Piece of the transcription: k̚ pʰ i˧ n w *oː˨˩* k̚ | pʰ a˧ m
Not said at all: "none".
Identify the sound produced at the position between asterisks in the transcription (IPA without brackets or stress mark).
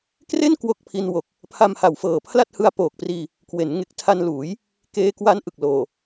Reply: o˨˩